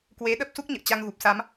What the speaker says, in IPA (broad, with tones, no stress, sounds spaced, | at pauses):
k w e˨˦ ɗ ə˦˥ p̚ s u˦˥ k̚ ɲ ə̰ː˧˨ t͡ɕ a˧ ŋ ɣ u˨˩ p̚ s a˨˦ m